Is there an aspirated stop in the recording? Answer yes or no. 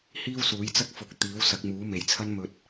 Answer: yes